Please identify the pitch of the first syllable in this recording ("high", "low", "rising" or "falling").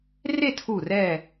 falling